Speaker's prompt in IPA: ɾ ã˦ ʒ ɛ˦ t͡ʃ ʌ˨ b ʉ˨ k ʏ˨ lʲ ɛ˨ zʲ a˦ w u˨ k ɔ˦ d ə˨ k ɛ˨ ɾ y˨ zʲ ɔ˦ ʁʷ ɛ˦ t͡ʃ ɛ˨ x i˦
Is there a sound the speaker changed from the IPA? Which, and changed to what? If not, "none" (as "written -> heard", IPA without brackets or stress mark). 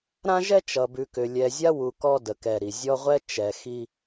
y˨ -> i˨